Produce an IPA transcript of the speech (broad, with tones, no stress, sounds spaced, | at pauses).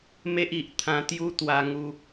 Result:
m e˦ ʔ i˨ ʔ t̪ʰ ã˧ t̪ j u˦ t̪ w a˧ ŋ u˧